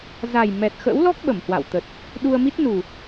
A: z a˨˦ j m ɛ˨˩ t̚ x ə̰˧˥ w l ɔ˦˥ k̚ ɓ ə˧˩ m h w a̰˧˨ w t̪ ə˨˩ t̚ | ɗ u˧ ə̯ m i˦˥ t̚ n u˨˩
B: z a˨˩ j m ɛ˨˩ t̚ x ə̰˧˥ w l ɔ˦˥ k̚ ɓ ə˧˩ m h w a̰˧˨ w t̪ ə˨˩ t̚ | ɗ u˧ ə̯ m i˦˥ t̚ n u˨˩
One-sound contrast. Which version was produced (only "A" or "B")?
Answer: B